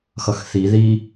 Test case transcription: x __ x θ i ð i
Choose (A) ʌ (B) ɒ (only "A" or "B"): A